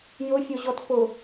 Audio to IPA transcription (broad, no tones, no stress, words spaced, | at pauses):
jʊfʲoʑɔt pʊ